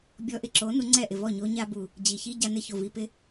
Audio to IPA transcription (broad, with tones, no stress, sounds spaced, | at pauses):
bʲ ɔ˧ ʔ ɪ˧ ǁ o˨˦ n u˧ ŋ͡ǀ ɛ˦˨ ʔ ɪ˨ v ɔ˦˨ ɲ o˧ ɲ a˦ b u˨ | d͡ʑ i˨ ç i˦ ɟ a˧ n ɪ˧ ç o˨ v i˧ p ɪ˦